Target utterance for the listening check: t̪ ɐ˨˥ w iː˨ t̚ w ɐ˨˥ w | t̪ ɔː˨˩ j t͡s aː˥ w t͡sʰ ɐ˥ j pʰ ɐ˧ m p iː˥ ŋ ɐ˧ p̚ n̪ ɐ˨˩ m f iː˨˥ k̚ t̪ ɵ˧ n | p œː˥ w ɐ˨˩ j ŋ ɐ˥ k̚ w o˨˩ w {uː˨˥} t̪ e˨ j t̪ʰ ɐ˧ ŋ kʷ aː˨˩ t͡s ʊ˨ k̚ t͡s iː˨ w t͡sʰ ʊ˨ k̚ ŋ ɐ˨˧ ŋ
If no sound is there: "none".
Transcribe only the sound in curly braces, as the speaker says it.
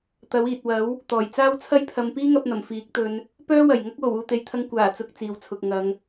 uː˨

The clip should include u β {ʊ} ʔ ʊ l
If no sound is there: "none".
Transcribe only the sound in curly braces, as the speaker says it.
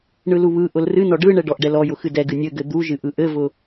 ɯ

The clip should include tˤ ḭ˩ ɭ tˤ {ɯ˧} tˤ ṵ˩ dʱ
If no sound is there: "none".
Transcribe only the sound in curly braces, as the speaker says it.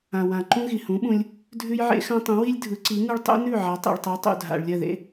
ɯ˩˥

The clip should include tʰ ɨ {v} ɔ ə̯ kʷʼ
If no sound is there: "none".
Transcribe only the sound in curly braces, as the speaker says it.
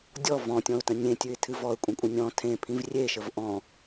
v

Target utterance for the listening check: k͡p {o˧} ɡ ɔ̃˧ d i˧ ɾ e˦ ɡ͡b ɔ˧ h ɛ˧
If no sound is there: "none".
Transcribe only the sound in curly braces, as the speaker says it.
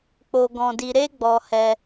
o˧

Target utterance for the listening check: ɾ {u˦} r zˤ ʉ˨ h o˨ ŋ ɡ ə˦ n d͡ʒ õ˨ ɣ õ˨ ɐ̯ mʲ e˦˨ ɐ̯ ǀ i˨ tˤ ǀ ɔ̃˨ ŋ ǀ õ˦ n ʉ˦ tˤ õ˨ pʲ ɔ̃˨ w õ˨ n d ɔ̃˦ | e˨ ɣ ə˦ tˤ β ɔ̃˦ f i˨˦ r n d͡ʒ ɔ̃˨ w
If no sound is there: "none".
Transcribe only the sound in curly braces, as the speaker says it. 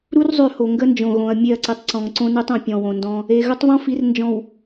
u˦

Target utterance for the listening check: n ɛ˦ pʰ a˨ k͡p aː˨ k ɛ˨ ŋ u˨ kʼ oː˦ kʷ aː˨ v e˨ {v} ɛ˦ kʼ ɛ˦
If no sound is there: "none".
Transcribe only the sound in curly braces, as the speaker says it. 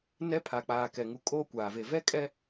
v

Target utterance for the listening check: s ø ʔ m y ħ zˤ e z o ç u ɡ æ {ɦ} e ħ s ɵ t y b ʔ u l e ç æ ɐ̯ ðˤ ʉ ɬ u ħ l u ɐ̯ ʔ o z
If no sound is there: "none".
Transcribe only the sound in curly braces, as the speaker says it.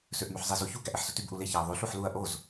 ʔ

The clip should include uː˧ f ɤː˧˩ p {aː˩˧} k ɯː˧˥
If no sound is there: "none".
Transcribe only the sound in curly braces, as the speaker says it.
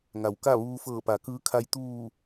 a˩˧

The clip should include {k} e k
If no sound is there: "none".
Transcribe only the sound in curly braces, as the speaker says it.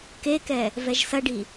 k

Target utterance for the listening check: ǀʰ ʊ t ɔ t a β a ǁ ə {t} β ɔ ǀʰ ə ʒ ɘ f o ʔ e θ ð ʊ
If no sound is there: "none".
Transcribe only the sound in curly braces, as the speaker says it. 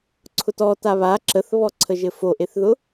θ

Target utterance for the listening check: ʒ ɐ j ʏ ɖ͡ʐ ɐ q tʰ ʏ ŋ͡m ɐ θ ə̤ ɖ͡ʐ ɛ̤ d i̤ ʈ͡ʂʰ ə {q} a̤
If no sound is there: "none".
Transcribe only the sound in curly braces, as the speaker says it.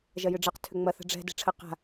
q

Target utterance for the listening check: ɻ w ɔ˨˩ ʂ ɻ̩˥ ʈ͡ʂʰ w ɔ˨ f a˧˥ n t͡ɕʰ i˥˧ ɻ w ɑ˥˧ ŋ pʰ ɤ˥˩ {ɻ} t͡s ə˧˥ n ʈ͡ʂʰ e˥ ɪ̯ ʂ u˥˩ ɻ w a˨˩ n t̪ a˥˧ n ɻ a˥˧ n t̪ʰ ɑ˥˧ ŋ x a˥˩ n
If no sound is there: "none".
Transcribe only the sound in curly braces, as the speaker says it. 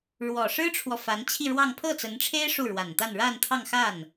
none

